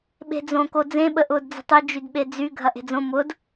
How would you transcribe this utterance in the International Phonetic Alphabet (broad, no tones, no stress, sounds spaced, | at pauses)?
ɓ e̤ d͡z õ k o d͡z ẽ ɓ ə ʔ ʊː d d͡z ə̤ tˤ y d͡ʒ y d ɓ e d͡z y ɡʱ ɐ ʔ e̤ d͡z õ m ʊ d